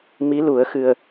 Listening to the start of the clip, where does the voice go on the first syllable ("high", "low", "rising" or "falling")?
rising